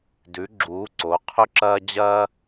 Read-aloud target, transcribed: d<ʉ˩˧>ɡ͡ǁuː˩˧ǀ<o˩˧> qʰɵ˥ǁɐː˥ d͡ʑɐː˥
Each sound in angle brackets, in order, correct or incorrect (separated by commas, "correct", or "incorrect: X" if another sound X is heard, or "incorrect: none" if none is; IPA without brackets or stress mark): correct, correct